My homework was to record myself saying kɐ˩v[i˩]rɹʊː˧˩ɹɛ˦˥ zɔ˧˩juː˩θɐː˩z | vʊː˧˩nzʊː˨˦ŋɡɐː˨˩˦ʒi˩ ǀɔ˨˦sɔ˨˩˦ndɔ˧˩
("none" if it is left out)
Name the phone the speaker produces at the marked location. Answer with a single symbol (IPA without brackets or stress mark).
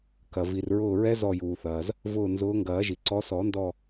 i˩